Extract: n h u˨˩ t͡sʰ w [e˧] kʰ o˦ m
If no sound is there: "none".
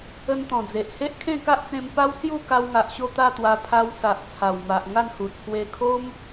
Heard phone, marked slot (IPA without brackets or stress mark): e˧